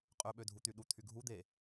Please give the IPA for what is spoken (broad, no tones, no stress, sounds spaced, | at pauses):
qʼ ø ɓ ø dʱ u t̪ y ɗ u t̪ʰ y ɡʱ u d̪ e